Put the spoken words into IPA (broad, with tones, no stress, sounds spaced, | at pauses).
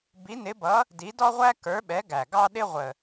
b i˨˥ n ɪ˨˥ b ʌ˨˥ | d i˨˥ d ɔ˥ ʁʷ æ˥ k ə˞˨˥ ɓ ɛ˨˥ ɡ æ˨˩ ɡ ɑ˥ ɗ ɪ˥ ʁʷ ə˨˩